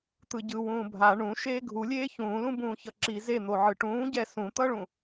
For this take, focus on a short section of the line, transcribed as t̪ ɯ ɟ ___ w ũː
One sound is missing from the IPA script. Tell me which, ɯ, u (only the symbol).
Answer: ɯ